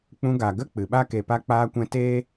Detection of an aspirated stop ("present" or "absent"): absent